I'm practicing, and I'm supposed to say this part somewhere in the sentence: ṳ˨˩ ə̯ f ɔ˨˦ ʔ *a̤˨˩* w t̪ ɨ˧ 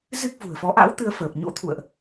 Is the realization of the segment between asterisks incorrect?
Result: yes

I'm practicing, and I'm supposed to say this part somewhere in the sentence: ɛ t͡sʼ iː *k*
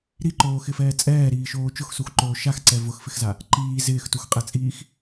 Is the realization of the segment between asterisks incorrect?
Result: yes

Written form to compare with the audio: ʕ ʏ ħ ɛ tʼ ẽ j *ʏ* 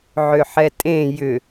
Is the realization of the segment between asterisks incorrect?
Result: no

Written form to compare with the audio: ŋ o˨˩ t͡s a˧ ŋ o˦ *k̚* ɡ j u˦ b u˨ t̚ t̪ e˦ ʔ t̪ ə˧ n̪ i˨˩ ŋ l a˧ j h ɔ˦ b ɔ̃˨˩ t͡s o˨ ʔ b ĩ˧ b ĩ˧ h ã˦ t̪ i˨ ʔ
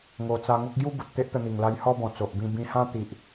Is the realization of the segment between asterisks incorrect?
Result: no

